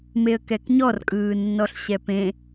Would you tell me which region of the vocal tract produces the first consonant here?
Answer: lips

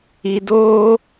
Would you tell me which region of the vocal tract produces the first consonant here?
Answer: tongue tip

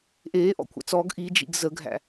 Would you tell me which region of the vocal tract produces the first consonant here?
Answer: throat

